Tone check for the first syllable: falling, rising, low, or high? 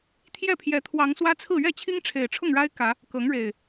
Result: falling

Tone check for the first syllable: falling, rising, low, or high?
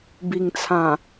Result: low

